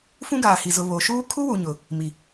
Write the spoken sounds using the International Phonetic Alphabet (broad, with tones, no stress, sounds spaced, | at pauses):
f ũ˦ ɡ aː˨ h i˨ z ʊ˨ β o˨ ʃ uː˦ kʰ u˦ w u˨ ɲ ʊ˨ | m i˨